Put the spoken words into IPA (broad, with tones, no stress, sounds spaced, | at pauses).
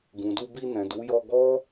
ɡ ũ˨ d u˧ b i˧ n ɛ̃˨ d u˨˦ j ɔ˧ ɡ ɔ˦